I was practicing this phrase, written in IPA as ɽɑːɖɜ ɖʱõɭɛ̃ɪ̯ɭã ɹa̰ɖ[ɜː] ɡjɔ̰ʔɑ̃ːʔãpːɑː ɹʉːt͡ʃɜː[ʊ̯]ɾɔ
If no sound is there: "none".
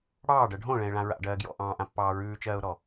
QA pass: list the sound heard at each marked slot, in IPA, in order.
ɜː, ʊ̯

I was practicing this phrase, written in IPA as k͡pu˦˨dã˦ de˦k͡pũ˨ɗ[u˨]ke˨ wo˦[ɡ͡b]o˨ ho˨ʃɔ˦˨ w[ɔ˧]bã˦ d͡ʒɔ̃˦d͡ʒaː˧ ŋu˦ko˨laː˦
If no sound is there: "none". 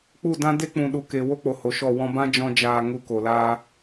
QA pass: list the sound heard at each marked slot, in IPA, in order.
u˨, k͡p, ɔ̃˧

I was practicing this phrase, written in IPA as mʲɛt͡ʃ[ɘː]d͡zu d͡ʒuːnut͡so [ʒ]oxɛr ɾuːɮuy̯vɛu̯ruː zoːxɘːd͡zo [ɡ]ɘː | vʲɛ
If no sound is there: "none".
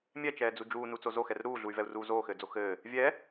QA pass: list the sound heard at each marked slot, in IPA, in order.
ɛː, z, x

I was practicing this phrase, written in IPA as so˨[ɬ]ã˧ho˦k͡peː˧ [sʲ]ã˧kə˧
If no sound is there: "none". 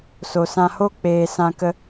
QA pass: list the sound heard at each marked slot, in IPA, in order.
s, s

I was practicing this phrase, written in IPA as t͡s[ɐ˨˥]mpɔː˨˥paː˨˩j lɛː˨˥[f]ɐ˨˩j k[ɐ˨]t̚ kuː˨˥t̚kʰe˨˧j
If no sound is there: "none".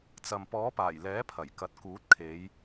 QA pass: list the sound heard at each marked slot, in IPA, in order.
ɐ˨, pʰ, ɐ˨

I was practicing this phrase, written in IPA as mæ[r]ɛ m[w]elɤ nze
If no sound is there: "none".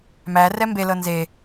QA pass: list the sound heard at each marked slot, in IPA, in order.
r, b

